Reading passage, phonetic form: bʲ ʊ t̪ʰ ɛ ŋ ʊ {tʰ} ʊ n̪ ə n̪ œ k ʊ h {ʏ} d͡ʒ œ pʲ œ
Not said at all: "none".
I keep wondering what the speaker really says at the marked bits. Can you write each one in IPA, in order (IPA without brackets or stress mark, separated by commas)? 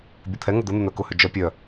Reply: d̪, ʏ